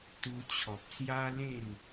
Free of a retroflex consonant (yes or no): yes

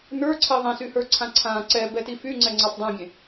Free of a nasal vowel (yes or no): no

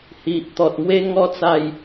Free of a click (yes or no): yes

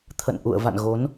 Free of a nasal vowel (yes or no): yes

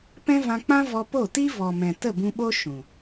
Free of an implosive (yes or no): no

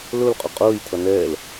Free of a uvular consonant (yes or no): no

